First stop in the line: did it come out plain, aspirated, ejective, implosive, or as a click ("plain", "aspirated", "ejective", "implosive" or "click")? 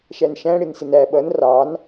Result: implosive